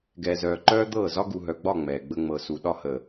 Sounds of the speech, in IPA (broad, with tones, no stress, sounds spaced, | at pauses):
ɡ ɛː˨ z œː˨ ǃ œː˦ d̪ ɤː˦˨ z ɒ˦ ɡ u˨ ɦ œ˨ ɡ͡b ɒ˦˨ ŋ͡m ɛː˨ ɡ͡b ə˦ ŋ͡m ɤ˨ s u˨ ɗ ɒ˦ h ə˨